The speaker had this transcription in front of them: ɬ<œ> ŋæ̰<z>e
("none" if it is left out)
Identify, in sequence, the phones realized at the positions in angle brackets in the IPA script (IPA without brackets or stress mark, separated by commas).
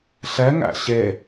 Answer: ɛ, ɕ